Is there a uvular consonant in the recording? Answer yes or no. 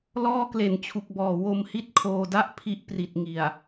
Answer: no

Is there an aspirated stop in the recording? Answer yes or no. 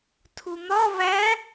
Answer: yes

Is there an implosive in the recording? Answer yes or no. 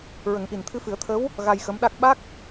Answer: yes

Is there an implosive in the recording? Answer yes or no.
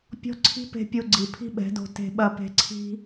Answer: yes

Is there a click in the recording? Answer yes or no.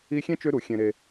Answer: no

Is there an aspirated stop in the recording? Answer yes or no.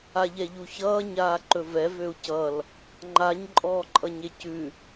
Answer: no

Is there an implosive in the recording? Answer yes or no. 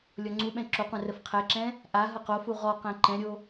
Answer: yes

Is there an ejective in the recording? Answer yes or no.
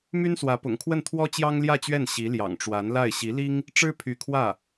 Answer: no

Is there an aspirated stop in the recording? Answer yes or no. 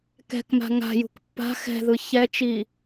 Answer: no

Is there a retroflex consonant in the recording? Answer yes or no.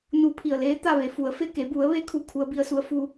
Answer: no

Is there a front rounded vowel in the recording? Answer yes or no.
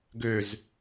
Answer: yes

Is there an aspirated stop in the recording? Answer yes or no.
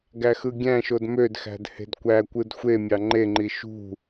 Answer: no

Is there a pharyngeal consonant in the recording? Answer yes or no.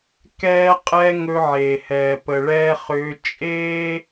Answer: yes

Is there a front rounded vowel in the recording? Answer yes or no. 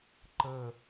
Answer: no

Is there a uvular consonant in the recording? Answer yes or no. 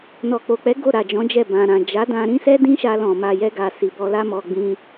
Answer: no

